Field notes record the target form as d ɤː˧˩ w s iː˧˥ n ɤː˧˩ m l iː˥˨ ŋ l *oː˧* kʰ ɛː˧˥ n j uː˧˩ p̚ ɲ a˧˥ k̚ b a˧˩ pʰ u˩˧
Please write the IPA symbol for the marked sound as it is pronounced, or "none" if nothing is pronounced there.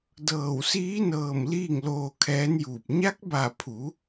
oː˧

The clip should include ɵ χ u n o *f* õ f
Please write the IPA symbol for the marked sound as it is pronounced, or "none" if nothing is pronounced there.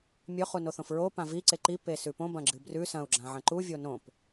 θ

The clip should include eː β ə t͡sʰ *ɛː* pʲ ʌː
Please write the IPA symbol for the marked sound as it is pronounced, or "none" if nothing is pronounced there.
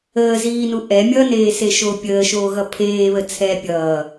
ɛː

